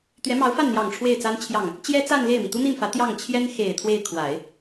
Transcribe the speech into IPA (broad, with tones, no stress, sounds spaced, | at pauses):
t̪ ɥ ɛ˧˥ m ɑ˧˥ ʊ̯ f a˥˩ n n̪ j ɑ˨˩ ŋ ʈ͡ʂʰ w e˥˩ ɪ̯ t͡s a˥ n t͡ɕʰ j ɑ˥˩ ŋ | t͡ɕ j ɛ˥ t͡s a˥˧ n l e˥˩ ɪ̯ m i˩ t̪ u˥ n̪ i˥˩ n f ä˧˥ t̪ j ɑ˥˩ ŋ t͡ɕʰ j ɛ˥ n x e˨˩ ɪ̯ t̪ʰ w e˥˩ ɪ̯ kʰ w a˨˩˦ ɪ̯